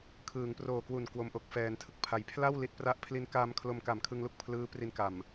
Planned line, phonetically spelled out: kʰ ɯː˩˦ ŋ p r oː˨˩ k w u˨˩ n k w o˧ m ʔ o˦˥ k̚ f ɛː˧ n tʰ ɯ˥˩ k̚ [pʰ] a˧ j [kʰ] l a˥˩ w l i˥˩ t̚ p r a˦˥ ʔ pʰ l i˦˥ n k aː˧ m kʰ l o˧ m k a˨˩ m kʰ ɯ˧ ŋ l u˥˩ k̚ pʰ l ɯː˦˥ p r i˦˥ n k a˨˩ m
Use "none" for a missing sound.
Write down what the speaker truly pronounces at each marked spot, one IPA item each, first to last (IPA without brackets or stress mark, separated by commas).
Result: pʰ, pʰ